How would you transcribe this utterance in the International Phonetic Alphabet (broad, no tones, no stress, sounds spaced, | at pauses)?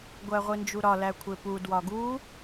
ɡʷ æ ʁʷ i n d͡ʒ u ɾ ɒ l æ kʷʰ e p u d w ɒ ɡ u